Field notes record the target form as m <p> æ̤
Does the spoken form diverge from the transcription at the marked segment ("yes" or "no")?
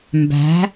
yes